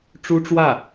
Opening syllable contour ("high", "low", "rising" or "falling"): high